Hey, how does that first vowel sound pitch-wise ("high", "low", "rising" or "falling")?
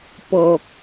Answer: low